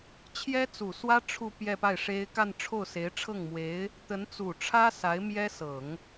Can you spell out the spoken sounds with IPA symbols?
t͡ɕʰ j ɛ˥ t͡s u˨˩ s w ä˥ ʈ͡ʂʰ u˥˧ p j ɛ˥˧ p a˥˩ ɪ̯ ʂ e˥ ɪ̯ k a˥˧ n ʈ͡ʂʰ o˥˩ ʊ̯ s e˧˥ ɪ̯ ʈ͡ʂʰ ɤ˥˩ ŋ m w e˧˥ ɪ̯ | t̪ ə˧˥ n t͡s u˨˩ ʈ͡ʂʰ ä˥ s a˧˥ ɪ̯ m j ɛ˥ s ɤ˨˩˦ ŋ

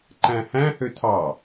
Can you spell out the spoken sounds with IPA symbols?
ǃ æ̃ h æ̃ h ø tʰ ɑ

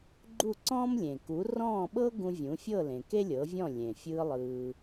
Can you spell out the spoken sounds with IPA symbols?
ɡ͡ǃ u˥˩ ǀ ɔ̃ː˥ m lʲ ẽ˩ k u˩˥ r ɔ̃ː˥˩ ɓ ɤ˥ ɡ ũ˧ vʲ ũ˩˥ fʲ ɤ˥˩ l ẽ˩ k e˥ lʲ ɤ˩˥ vʲ ɔ̃˥˩ lʲ ẽ˩ fʲ ɯː˧ lˠ ɯː˧

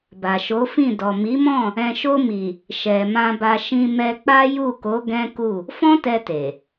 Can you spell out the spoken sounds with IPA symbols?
b a˨ ʃ o˨˦ f ĩ˦˨ d ɔ˨ m i˨˦ m ɔ̃˦˨ | ɛ̃˨ ʃ o˧ m i˨ | ʃ ɛ˨ m ã˧ b a˧ ʃ ĩ˧ m ɛ˧ k͡p a˦ j u˦˨ k o˨˦ ɡ ɛ̃˦ k u˦˨ | f ɔ̃˦ t ɛ˧ t e˨

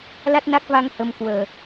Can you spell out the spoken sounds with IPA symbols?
l a˦˥ t̚ n a˦˥ k̚ v a˧ ŋ h ə˧ m k w əː˨˩

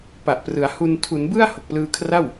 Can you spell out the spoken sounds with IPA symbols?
p a˨˩ ʔ p r ɯ˩˦ a̯ h u˧ n tʰ u˩˦ n b ɯ˥˩ a̯ h o˨˩ k̚ p l ɯː˧ kʰ r a˥˩ w

